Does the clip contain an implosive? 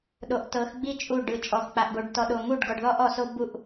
yes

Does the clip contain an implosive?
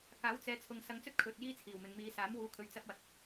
no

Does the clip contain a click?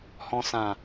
no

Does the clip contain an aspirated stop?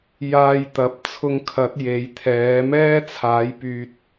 yes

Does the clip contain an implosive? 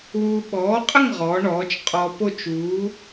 yes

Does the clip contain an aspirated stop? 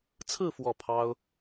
yes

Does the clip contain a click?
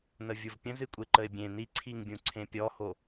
yes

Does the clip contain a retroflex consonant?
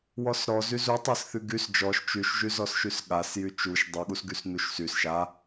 no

